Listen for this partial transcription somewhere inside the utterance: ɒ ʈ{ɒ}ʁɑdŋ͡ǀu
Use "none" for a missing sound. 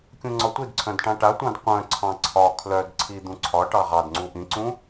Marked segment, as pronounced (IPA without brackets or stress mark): ɑ